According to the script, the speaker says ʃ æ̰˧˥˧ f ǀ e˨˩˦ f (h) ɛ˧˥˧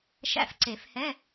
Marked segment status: correct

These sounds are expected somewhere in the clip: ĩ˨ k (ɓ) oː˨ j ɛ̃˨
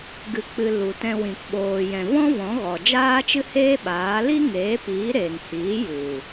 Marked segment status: correct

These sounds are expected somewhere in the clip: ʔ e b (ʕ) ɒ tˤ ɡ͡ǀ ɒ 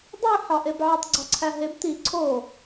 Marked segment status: correct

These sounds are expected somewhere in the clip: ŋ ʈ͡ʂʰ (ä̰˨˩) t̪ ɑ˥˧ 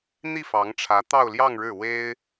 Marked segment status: incorrect: ä˧˥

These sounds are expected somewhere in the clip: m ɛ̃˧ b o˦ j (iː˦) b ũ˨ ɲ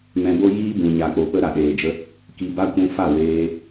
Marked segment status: correct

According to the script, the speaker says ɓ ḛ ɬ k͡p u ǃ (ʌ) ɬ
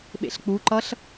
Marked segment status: correct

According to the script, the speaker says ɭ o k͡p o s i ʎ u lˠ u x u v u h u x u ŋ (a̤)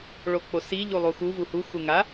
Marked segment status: incorrect: a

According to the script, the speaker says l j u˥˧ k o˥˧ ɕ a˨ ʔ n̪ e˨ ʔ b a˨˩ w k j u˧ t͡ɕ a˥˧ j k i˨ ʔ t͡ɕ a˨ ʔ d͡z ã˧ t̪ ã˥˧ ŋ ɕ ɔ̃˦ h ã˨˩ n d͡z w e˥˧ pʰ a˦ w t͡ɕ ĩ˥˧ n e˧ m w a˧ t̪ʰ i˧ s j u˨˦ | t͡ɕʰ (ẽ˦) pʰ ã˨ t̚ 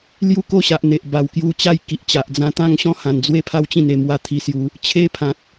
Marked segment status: incorrect: e˦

